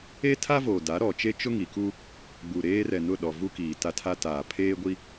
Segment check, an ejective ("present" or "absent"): absent